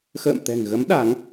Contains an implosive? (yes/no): yes